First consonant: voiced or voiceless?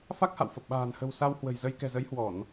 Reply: voiceless